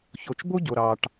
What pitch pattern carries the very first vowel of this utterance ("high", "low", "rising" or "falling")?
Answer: low